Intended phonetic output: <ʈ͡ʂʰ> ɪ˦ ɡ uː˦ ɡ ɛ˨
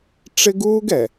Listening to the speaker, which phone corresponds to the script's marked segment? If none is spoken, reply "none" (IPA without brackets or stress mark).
ʈ͡ʂ